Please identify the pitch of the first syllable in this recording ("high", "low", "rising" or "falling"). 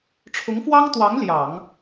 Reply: rising